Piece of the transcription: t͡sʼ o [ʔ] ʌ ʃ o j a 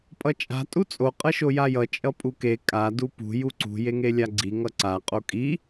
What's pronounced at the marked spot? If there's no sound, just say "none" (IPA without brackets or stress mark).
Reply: qʼ